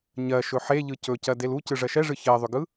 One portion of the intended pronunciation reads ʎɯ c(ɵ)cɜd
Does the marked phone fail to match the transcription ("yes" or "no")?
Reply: no